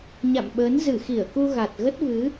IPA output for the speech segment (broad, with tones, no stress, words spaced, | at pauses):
ɲa̰˧˨mɓəː˨˦n zɨ˧˩xi˧˩ə̯ku˧ ɣa˨˩t̚ ɣə˦˥t̚vɨ˨˦